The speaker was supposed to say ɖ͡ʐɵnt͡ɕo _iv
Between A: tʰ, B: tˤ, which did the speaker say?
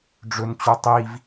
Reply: B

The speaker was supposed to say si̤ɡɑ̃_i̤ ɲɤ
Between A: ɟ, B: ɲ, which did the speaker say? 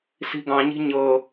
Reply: B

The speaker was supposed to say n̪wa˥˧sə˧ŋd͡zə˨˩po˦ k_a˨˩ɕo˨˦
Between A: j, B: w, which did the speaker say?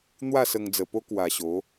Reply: B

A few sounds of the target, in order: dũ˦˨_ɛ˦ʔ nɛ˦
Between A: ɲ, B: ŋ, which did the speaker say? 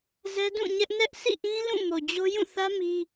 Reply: A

